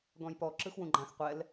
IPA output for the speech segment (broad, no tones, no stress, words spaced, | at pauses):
ɡɔ̃jpɔ ǁɯxwũɡ͡ǃãx qʷɛl